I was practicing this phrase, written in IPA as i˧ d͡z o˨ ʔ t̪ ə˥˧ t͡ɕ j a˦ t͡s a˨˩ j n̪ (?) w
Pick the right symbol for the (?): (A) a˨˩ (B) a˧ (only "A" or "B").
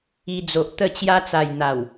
A